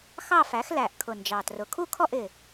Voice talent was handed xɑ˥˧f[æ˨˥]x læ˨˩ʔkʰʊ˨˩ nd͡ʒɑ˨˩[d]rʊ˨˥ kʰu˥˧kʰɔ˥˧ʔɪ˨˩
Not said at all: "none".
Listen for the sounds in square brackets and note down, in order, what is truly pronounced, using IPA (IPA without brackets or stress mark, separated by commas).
æ˨˥, t